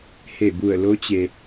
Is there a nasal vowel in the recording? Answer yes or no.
no